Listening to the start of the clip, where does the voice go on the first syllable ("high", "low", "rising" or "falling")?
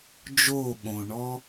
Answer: falling